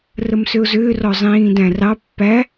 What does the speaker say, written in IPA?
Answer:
r ə m s ʏ ʊ̯ z ʏː r ɔ zˤ ĩː d æ̃ r ɑ pː æ

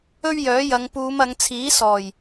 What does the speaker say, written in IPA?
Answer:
ɵ˥ ɥ j œː˨˥ j ɐ˨˧ ŋ p uː˨˧ m ɐ˨˧ ŋ t͡sʰ iː˨˥ s ɔː˨˩ j

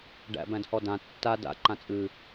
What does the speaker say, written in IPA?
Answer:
ɖ æ̰ b æ̃ d h ɔ d ã tː a d a̰ ǃ ã t͡sʼ ɨ

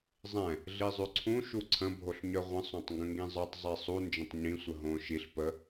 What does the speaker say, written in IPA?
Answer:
zˤ ɛ̃ | ɮ i zˤ ʉ ǀʰ ũ ʃ u ǀʰ ə̃ bʱ o ɬ ɲ œ ʁʷ ə̃ sˤ õ tˤ ŋ ɡ ə̃ ŋ ɡ ĩ zˤ ə˞ tˤ zˤ i sˤ u n d͡ʒ ə̃ tˤ ɲ ĩ sʷ ə ɦ õ ʃ i ɬ p ə

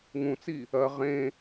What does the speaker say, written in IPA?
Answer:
ŋ ũ t͡s i | ɐ ʁ ẽ

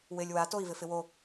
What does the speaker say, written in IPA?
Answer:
w ɪ lʲ w a t o i̯ v ɪ f ɪ w o

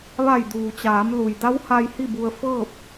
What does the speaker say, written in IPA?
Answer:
ʋ a˧˩ j d uː˩ t͡ɕ aː˩˧ m l u˩ j d a˧˥ w h a˧ j h i˥˨ b u˧ ə̯ f ɤː˥˨ p̚

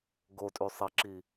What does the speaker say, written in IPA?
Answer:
ɡ o tʼ y sˤ e ǁ i

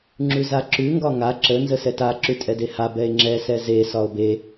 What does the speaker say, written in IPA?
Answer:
ŋ͡ǁ ʉ z a ǁ ʉ ŋ ɡ ɒ ŋ a ǁ ə n z ə s ɛ t a ǁ ʉ tʼ ɛ d e h a b ɛ e̯ ŋ͡ǁ ɛ s ɛ z e s ɒ o̯ b e

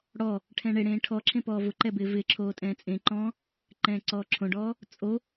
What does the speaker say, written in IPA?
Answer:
ɽ ɔ | ʈʰ ɛ̃ ɳ e ɽ ẽː ʈʰ ɔ ǁʰ ẽ p ɔː v ʊ ǃ ɛ b ɪː v ɪː ǁʰ oː tʼ ɛ̃ː t͡sʼ ẽ ǃ ɔ̃ː | ǃ ɛ̃ː ǀ ɔː ǁʰ õ ɖ ɔː | t͡sʼ o

